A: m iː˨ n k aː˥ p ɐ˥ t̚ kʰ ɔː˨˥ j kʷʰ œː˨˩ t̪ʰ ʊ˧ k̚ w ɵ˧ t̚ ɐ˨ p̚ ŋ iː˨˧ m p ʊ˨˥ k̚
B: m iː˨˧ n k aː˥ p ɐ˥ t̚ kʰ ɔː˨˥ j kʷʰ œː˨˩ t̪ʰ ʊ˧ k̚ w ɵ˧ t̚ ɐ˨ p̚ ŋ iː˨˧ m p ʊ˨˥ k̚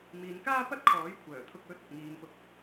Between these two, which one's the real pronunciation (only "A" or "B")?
B